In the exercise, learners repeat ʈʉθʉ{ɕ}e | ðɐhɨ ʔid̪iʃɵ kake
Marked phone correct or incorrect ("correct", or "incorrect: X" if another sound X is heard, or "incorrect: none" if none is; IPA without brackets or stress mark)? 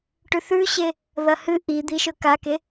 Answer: correct